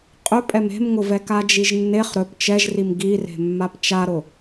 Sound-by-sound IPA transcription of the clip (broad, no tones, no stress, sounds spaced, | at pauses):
qʼ ɵ pʼ ɛ m e̤ m ŋ ʊ v ɛ k a d͡ʒ i ʒ nː e χ ɾ ɵ p t͡ʃ ɛ ʒ r i m ɡ i r e̤ mː a p t͡ʃ a ɾ ʊ